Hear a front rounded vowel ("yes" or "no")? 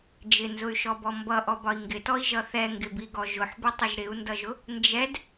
yes